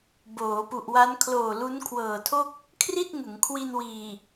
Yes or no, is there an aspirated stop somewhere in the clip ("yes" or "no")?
yes